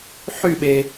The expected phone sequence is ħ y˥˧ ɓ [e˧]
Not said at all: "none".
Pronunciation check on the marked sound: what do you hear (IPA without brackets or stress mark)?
e˧